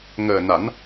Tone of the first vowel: low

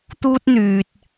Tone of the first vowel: high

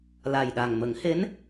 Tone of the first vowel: low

